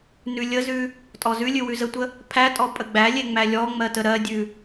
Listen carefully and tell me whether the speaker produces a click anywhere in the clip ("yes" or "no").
no